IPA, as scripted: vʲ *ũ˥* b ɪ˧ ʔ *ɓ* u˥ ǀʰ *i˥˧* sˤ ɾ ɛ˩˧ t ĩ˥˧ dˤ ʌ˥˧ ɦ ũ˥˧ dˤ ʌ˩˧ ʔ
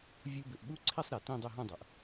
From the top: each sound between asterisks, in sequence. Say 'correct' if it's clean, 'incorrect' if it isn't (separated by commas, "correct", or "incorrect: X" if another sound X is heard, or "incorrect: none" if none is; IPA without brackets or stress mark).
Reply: incorrect: u˥, correct, correct